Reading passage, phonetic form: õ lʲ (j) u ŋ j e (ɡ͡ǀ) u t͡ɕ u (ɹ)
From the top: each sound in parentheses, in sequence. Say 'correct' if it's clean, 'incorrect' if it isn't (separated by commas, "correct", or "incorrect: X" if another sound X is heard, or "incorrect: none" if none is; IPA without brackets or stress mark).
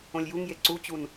correct, incorrect: ǀ, incorrect: n